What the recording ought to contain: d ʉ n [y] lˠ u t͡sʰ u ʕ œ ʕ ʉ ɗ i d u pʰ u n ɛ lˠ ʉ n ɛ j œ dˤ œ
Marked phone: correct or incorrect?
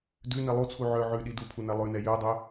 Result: incorrect